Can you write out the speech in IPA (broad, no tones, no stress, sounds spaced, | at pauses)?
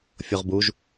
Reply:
fʲ o ʁ b u ʒ